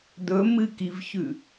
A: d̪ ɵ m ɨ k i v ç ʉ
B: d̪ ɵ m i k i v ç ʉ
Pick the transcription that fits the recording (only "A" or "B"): A